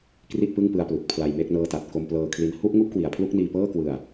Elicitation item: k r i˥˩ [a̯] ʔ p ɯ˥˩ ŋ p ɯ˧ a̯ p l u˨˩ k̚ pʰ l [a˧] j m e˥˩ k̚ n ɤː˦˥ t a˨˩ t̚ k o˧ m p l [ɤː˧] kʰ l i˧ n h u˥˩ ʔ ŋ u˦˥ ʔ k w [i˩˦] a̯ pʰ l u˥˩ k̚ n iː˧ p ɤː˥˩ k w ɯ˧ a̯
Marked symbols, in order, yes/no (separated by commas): no, yes, yes, no